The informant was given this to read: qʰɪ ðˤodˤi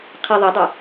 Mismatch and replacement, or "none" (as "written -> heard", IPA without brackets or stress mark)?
ɪ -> ɨ